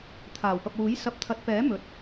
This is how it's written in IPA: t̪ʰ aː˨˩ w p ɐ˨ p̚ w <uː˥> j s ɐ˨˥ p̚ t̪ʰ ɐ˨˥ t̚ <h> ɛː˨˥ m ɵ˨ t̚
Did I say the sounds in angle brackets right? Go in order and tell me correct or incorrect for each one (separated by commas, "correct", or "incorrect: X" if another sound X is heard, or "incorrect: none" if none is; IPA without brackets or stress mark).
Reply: incorrect: uː˨˥, incorrect: p